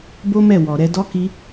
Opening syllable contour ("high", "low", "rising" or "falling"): high